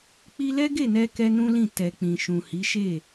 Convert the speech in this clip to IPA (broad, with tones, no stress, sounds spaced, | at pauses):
k͡p i˦ l ɛ˦ ɡ e˦˨ n ɛ˧ k ɛ˧ n ũ˦ l ĩ˦˨ t ɛ˨ k͡p ĩ˨ ʃ ũ˨ h i˨˦ ʃ e˦˨